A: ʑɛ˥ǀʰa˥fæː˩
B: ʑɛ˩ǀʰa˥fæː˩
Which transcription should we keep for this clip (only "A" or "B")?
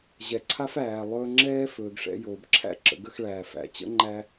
B